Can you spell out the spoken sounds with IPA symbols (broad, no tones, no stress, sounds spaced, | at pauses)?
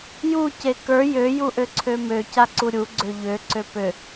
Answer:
j u c e k ə˞ j ø j u ʔ ø ǀʰ ø m ø c a ǀ u ɾʲ u ɡ͡ǀ ø ʎ ø ǀ ø p ø